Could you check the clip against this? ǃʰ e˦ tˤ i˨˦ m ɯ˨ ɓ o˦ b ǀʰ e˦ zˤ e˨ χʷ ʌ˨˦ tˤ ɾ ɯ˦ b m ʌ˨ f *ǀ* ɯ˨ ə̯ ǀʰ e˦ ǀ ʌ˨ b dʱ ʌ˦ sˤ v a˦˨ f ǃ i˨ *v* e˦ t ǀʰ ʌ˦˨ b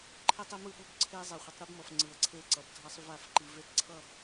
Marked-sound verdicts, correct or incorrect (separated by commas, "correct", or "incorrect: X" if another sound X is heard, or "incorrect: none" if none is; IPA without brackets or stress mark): incorrect: ŋ͡ǀ, correct